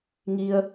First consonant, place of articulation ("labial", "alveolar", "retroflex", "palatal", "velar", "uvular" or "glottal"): velar